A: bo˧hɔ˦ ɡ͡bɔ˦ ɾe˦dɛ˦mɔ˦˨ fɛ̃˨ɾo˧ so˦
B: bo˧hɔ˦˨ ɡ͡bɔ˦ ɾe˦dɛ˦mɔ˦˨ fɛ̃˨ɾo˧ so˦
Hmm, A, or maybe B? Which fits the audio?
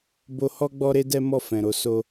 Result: A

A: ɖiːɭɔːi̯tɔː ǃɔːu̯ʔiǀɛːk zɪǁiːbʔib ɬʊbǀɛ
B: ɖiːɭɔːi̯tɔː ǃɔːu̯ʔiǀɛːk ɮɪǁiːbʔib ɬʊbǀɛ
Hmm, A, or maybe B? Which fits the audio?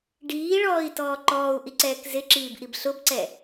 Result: A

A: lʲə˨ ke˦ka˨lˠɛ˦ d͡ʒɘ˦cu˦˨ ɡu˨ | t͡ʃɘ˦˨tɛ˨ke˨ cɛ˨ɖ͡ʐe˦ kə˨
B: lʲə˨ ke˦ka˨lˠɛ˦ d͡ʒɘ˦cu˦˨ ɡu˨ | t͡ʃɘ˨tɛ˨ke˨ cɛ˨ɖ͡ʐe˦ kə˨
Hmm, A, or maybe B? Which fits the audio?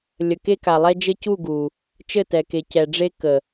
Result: A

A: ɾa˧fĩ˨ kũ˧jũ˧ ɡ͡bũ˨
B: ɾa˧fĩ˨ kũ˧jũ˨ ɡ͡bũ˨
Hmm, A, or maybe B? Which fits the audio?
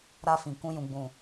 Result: B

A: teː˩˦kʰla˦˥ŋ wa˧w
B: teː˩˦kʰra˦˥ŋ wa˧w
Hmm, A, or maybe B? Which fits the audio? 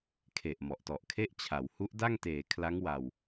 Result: A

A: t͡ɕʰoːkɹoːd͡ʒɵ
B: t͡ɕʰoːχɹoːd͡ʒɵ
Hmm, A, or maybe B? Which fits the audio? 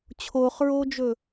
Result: B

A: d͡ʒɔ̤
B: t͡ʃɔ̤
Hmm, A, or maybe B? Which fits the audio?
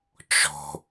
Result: B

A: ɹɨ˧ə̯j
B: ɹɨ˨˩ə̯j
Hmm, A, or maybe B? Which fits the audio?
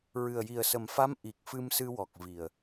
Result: B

